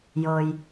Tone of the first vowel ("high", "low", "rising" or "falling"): low